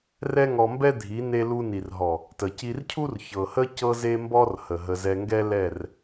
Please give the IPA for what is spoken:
rɛ˦ŋɔ˧mbɛ˦dʱi˨˦ ne˧ lu˧ni˨rɦɔ˨ | tə˨ci˧r cʰu˦r çɤ˨hə˦ cɤ˧ze˧mbɔ˧r hə˨ɦə˧ zɛ˧ŋɡɛ˦lɛ˦˨r

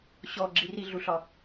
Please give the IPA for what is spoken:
ɕɔ ɡ͡ǁiriɮuɬɒ

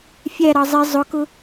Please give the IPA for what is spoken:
fʲæɾɑ zˤi zˤʊkʊ

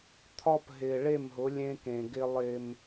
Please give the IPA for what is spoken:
t̪ʰɒ˦pɦɪː˨ ɭe˦˨mɦʊ˨˦ lʲẽ˦kẽ˨ɡɪː˦lˠ ɪː˦m

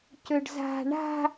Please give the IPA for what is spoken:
cøɖza̤ ɳa̤

